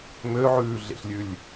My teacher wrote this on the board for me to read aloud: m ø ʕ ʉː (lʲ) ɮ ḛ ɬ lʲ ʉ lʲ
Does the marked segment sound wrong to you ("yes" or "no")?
yes